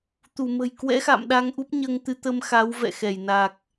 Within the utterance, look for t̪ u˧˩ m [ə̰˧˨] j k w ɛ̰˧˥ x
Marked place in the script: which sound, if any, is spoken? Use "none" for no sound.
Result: ə̤˨˩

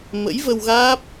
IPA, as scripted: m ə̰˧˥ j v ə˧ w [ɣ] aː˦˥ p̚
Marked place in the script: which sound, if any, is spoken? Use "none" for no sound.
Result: ɣ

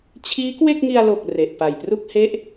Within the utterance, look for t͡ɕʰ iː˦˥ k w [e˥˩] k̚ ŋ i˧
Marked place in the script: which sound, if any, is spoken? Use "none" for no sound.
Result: e˥˩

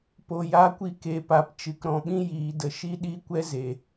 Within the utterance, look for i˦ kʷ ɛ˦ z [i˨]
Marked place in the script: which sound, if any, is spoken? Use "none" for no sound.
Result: e˨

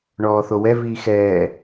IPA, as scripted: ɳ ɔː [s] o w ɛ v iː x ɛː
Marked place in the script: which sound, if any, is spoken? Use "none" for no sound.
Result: θ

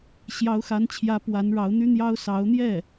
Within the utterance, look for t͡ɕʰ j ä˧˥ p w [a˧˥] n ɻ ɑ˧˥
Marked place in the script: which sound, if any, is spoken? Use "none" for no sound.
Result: a˧˥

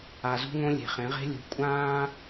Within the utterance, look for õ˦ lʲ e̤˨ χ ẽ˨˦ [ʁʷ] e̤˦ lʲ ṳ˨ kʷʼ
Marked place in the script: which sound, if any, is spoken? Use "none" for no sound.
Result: ʁ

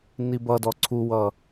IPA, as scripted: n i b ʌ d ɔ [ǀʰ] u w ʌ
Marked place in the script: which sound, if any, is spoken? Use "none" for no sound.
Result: ǀʰ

